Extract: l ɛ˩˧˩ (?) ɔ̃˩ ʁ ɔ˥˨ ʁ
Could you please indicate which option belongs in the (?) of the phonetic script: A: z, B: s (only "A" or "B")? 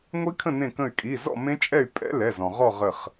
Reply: A